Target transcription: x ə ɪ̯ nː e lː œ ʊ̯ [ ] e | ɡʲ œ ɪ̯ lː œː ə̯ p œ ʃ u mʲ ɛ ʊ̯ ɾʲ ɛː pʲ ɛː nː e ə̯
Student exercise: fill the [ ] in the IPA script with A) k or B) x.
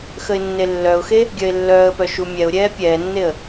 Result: B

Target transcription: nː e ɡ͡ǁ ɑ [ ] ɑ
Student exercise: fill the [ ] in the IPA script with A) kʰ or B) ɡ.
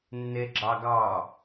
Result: B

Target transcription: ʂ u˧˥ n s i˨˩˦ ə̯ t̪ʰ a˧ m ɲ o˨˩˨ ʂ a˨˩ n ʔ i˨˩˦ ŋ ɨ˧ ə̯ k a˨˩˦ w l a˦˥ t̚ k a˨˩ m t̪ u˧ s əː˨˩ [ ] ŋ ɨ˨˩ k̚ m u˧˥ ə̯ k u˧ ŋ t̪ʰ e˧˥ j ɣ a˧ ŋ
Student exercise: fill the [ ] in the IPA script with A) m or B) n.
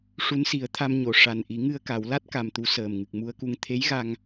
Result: A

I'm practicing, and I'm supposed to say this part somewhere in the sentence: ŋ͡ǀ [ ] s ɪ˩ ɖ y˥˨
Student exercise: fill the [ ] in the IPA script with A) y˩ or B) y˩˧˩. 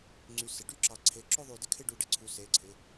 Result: A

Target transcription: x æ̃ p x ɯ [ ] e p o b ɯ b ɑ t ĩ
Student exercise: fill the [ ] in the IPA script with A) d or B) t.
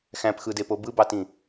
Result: A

